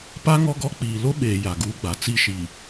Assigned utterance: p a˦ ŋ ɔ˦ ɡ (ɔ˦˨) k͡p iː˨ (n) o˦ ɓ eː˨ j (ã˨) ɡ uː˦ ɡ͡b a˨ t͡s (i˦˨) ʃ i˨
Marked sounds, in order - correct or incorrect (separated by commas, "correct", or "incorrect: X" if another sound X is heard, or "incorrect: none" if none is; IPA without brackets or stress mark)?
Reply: incorrect: ɔ˦, incorrect: l, incorrect: a˨, correct